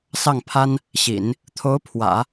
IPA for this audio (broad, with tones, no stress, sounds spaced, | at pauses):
s ɑ˥˩ ŋ pʰ a˥ n | ɕ ḭ˨˩˦ n | t̪ʰ o˧˥ ʊ̯ pʰ w ä̰˨˩˦